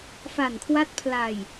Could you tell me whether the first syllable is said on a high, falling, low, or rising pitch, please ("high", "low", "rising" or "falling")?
low